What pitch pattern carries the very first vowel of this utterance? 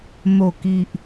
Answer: low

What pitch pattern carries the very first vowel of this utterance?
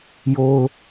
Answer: high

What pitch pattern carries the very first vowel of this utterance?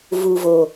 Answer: low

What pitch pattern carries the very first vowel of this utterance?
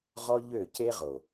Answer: high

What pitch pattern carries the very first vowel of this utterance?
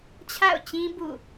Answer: falling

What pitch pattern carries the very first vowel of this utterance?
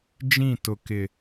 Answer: falling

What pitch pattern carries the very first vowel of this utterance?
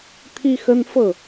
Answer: high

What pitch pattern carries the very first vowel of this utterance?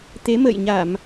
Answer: rising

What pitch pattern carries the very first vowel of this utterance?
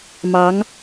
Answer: rising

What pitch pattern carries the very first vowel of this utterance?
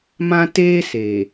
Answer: high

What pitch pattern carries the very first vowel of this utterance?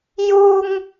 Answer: high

